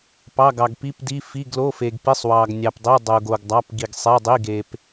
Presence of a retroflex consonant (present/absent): absent